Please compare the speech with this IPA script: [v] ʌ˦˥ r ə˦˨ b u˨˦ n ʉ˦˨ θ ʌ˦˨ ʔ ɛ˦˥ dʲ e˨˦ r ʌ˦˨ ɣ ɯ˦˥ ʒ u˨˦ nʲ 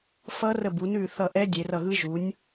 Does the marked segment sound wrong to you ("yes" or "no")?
yes